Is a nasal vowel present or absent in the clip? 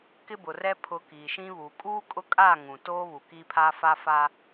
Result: present